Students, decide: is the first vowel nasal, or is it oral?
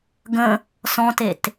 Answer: nasal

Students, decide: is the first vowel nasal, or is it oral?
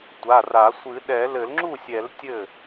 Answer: oral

